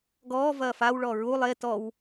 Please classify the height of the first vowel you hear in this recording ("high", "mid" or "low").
mid